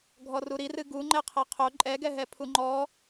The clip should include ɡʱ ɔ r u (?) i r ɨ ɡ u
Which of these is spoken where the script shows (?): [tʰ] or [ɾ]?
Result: ɾ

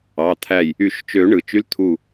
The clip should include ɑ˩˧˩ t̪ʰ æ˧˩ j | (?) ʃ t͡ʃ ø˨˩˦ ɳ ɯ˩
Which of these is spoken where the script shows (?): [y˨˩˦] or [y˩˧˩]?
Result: y˨˩˦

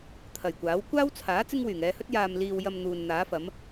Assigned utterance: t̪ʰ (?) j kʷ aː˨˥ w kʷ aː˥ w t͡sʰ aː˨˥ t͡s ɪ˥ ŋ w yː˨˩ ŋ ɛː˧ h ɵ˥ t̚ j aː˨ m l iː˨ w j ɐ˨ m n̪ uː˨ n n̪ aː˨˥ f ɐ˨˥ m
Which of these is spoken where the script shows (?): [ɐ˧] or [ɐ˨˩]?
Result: ɐ˨˩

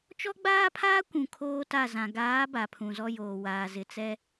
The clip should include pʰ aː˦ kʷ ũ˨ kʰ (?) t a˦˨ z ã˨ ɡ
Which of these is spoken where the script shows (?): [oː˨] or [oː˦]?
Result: oː˦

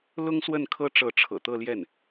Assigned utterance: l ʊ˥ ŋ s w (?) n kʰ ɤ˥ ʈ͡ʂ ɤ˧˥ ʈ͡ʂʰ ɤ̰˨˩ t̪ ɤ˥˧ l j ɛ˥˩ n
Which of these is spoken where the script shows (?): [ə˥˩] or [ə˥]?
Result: ə˥˩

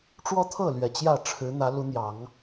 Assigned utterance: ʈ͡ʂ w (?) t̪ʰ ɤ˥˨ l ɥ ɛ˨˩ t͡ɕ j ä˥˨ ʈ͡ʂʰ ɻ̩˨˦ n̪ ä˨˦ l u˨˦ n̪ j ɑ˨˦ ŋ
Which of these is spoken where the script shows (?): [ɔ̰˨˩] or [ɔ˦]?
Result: ɔ˦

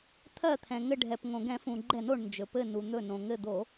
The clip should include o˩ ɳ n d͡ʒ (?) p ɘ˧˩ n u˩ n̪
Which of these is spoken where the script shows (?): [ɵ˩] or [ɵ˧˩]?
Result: ɵ˩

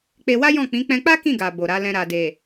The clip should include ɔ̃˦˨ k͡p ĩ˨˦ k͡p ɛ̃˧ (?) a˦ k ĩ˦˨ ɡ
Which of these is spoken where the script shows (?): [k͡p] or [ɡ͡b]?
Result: k͡p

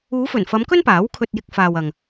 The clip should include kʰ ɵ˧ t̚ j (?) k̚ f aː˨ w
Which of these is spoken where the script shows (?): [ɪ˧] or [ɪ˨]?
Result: ɪ˧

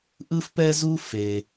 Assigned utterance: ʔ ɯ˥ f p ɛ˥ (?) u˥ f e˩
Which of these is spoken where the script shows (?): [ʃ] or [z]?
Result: z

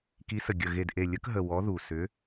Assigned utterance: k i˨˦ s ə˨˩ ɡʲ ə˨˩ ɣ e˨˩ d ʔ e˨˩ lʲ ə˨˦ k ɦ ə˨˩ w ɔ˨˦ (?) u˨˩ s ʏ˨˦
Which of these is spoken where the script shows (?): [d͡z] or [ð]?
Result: ð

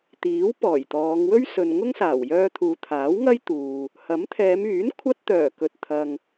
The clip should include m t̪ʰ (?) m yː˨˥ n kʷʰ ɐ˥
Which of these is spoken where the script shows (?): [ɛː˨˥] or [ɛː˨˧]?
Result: ɛː˨˧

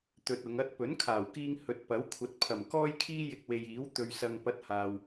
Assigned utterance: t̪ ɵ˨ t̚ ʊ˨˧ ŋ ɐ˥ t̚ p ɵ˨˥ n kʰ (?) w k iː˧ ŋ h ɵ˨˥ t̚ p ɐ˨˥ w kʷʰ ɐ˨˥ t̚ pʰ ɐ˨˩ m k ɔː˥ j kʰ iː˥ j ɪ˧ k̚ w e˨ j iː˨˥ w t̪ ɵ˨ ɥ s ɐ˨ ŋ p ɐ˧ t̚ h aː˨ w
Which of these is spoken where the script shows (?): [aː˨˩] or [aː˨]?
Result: aː˨˩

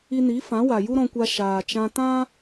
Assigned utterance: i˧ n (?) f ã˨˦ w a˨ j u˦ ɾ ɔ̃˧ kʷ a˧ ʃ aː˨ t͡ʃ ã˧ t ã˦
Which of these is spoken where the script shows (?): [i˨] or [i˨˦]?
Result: i˨˦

